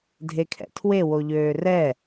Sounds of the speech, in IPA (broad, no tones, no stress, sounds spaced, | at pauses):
dʱ e kʰ ɛ̰ tʰ w e w o ʎ øː r ɛ